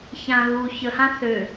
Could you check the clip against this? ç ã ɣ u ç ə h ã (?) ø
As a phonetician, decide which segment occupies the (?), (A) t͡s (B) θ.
B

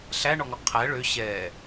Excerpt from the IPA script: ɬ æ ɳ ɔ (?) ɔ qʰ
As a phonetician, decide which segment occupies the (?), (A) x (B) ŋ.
B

